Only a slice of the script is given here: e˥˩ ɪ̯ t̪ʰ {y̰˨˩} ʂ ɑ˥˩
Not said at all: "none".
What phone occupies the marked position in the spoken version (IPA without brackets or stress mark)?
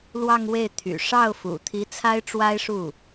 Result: y̰˨˩